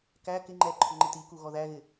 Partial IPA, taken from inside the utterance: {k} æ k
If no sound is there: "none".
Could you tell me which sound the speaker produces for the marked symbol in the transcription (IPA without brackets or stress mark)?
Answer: k